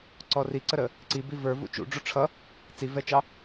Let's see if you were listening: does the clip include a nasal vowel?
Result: no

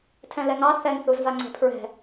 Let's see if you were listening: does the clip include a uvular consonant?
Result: no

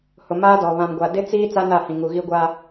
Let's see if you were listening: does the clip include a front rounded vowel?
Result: no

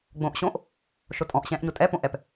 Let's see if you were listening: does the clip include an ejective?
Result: yes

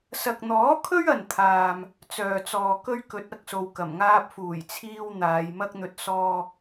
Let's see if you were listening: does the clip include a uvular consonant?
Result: no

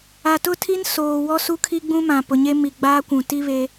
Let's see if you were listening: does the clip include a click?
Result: no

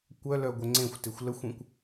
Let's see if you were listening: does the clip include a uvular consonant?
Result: no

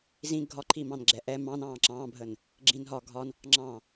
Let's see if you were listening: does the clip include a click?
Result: yes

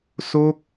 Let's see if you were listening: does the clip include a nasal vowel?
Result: no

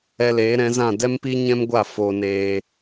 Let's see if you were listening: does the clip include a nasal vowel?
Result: yes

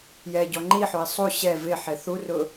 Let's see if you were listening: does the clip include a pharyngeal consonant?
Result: yes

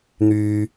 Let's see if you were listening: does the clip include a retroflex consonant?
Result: no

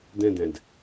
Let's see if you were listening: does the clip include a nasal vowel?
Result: yes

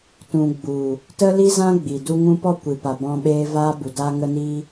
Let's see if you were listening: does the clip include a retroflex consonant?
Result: no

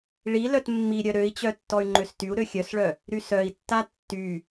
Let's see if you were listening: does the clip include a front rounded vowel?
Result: yes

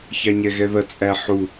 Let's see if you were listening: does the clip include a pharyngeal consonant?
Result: yes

